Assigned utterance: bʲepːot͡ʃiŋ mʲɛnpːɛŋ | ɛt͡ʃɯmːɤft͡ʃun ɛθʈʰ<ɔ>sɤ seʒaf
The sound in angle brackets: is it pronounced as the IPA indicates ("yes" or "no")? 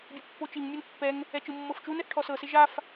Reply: yes